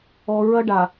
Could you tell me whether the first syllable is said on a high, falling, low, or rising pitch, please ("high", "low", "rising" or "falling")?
low